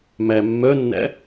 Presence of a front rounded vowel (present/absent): present